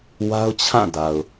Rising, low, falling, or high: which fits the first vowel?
high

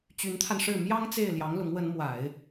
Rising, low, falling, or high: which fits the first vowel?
rising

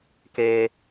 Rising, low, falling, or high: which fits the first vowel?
low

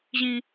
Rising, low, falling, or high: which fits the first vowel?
high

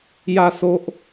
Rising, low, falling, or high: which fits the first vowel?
falling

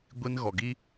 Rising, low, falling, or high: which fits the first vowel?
high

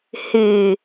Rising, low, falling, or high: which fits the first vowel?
low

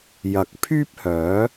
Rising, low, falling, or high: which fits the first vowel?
rising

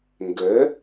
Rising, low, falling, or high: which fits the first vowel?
rising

